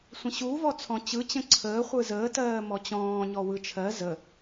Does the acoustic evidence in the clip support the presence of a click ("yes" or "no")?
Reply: yes